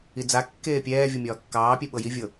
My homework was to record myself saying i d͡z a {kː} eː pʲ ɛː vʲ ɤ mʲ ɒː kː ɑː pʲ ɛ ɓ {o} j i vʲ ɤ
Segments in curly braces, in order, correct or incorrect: correct, incorrect: ɤ

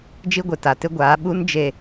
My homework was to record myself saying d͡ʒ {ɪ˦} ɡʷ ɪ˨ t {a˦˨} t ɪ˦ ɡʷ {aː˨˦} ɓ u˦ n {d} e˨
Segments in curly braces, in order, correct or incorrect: incorrect: i˦, incorrect: a˨, correct, incorrect: d͡ʒ

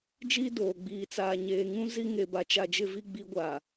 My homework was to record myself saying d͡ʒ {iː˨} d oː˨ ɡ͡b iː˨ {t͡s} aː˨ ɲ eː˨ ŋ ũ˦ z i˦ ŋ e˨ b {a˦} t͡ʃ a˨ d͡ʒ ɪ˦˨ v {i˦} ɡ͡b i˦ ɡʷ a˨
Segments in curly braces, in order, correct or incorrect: incorrect: iː˦, correct, incorrect: a˨, correct

